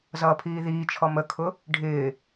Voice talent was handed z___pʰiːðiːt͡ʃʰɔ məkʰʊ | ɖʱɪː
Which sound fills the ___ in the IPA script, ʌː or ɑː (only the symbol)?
ʌː